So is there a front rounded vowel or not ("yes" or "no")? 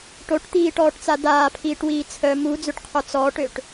yes